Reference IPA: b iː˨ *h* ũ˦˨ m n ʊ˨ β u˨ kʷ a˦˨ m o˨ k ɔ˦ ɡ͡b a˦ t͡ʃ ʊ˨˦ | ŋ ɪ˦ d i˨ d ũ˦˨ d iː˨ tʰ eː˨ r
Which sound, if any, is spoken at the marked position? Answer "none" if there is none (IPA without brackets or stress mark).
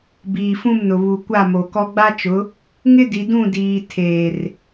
f